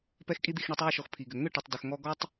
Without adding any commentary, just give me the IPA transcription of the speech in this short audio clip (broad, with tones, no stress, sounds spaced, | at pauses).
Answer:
p ɛ˧ x kʼ i˧ d̪ i˨ x ɳ i˧ tˤ ɛ˦˨ ʊ̯ ʃ ɔ˨ x pʰ i˨ ɡ ʏ˨ ŋ ʏ˦˨ ʈ ʏ˨ tˤ d ʏ˨ x ŋ ɔ˧ ɡ ɔ˦ tˤ